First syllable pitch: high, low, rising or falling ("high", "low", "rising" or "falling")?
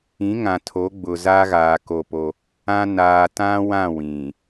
rising